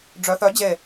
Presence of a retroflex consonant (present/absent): present